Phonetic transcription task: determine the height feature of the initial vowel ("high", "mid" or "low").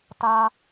low